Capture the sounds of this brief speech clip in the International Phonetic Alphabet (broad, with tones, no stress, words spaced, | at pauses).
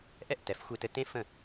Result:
ʔɛ˥˩ʔtɛ˩˥fxʷe˧tɘ˧ tẽ˥fə̃˥˩